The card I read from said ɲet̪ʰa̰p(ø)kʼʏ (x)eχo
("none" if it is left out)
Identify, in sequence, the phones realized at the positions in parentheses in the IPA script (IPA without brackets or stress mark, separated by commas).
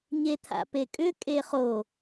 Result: e, kʼ